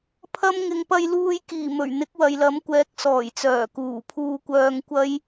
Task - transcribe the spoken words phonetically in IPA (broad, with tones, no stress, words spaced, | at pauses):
pʰɐ˥m ŋɪ˨ŋpɐ˧jluː˧jkiː˨˩ mɵ˨˩ɥ n̪ɪ˨˥k̚wɐ˨jlɐ˨˥mkʷɛː˨˥k̚ sɔː˨˩jt͡sœː˨˩kuː˨˩ pʰuː˧kʷœː˧ŋkʷɐ˥j